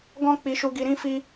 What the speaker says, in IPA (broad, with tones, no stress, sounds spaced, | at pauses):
ɡ ɔ̃˦ k͡p i˧ ʃ u˧ ɡ i˧ ɾ ĩ˦ f i˦